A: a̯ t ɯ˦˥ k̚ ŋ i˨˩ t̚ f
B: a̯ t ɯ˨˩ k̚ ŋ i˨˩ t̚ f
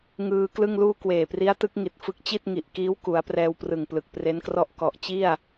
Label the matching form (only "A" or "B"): A